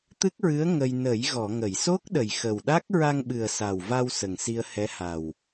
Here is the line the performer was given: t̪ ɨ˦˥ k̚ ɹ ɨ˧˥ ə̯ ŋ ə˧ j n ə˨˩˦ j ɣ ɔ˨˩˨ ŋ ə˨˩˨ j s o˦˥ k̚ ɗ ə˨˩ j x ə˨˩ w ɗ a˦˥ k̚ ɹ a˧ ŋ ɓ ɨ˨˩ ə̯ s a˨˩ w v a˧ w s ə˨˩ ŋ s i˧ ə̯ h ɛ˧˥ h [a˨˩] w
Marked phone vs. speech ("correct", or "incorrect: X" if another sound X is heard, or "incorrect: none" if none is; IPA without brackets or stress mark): correct